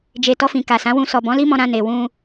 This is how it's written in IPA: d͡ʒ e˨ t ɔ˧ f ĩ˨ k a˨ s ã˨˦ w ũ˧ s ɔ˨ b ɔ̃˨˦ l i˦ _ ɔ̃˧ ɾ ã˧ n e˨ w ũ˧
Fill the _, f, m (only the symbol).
m